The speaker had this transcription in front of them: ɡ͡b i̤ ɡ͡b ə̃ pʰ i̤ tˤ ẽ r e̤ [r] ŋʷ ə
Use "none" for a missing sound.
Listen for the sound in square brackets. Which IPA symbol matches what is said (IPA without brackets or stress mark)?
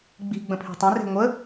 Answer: none